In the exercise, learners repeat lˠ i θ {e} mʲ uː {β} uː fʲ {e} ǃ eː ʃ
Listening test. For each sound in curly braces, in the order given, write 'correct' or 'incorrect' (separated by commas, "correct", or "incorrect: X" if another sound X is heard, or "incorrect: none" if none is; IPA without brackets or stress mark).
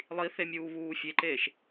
correct, correct, correct